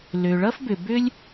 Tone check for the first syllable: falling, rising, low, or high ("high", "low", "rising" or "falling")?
low